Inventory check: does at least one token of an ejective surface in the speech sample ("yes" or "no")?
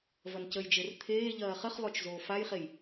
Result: no